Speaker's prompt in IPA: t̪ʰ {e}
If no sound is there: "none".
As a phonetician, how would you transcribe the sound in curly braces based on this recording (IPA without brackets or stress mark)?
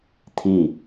i